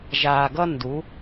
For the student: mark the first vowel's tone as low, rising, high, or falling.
low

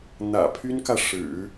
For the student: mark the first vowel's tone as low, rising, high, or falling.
low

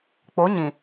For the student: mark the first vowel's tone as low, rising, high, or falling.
rising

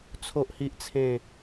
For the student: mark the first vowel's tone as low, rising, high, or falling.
high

